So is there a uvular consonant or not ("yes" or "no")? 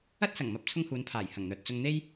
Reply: no